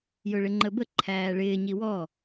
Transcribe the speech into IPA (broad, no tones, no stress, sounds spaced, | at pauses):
j ʊ ɭ ɪ ŋ͡ǃ ə b ə ǃʰ æː ɭ ɪː ɲ i w ɔ